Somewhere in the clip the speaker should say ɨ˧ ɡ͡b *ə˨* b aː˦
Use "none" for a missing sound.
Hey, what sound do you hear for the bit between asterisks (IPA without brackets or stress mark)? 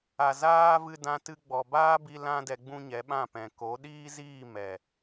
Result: ɔ˨